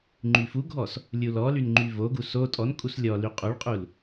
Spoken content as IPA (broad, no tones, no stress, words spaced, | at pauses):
ŋ͡ǃyfuɡʱɔs | lʲulɔlyn ŋ͡ǃyvoɡu so tʼɔnkʼus lʲɔ lyqʼuɭqʼul